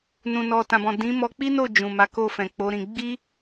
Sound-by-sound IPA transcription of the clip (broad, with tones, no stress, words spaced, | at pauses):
nũ˨nɔ˨tã˨bɔ̃˨ dĩ˨˦mɔ˧ k͡pi˦no˦˨ d͡ʒũ˨ma˨˦ko˦˨ fɛ̃˨k͡po˨˦ɾĩ˧ ɡ͡bi˦